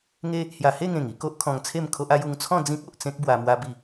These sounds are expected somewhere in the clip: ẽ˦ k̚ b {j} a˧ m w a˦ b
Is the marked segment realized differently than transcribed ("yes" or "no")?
yes